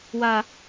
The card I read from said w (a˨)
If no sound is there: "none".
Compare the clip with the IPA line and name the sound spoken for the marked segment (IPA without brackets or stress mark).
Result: a˨